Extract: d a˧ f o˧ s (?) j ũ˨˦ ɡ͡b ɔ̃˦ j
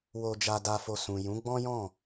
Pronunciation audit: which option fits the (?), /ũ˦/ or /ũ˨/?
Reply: ũ˨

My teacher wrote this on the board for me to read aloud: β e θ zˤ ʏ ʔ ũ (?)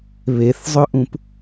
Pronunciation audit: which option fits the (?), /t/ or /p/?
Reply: p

